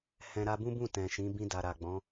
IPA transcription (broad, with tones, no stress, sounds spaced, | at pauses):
h ɛ̃˧ ɾ a˧ b ũ˦ b ũ˦˨ t ɛ̃˨ ʃ ĩ˨˦ b ĩ˧ d a˨ ɾ a˨ ɡ͡b ɔ̃˨˦